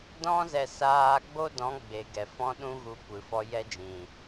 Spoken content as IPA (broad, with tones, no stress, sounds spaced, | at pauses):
d ɔ̃˦ z ɛ˧ s aː˧ ɡ͡b o˦ d ɔ̃˨˦ ɡ͡b e˨ ɡ ɛ˨ f ɔ̃˦ ɗ ũ˦ ɣ u˧ kʷ ɨ˨ f ɔ˧ j ɛ˧ d͡ʒ ĩ˨